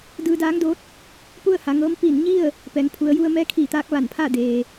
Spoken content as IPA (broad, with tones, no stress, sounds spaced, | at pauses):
d ɯː˧ d aː˧˥ ŋ d o˧˥ t̚ | p u˥˨ ə̯ h a˩˧ ŋ ɤː˧˥ m p i˧˩ n ɲ i˥˨ ə̯ | p ɛː˩˧ ŋ pʰ u˩˧ ə̯ j u˧ ə̯ m ɛː˧˥ kʰ iː˧˩ t̪ aː˧ k̚ ʋ a˧˩ n pʰ aː˥˨ d eː˩